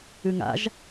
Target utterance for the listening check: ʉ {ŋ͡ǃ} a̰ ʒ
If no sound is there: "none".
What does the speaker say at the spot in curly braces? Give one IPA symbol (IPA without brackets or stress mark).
ŋ